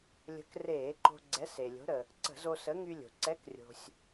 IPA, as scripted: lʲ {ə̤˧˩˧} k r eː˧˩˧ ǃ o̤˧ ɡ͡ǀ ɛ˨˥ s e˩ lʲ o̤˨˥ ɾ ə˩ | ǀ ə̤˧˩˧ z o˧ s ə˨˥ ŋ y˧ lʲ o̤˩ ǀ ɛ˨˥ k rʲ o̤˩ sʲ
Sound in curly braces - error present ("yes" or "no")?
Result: yes